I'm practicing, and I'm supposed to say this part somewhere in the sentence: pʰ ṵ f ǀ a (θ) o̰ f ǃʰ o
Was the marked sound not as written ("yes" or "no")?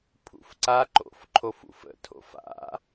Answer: yes